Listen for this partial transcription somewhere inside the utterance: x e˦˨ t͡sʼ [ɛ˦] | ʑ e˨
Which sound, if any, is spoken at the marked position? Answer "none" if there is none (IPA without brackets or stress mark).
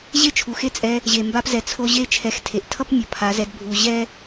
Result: ɛ˧